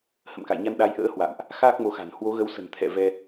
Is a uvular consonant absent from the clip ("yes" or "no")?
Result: yes